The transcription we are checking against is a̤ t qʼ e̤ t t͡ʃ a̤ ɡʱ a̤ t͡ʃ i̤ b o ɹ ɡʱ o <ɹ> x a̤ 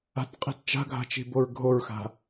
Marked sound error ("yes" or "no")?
no